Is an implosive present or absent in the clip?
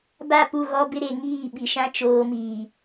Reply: present